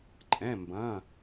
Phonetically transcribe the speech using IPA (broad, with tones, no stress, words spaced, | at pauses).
ǃʼɛ̃˩˧˩mbɐ̃˩˧˩